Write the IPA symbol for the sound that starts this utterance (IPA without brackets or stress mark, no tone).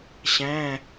ɕ